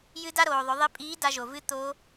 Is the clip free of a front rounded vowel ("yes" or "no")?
yes